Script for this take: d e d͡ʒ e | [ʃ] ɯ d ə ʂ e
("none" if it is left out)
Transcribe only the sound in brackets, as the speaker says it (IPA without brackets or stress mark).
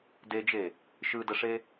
ʃ